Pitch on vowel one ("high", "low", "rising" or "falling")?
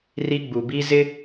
high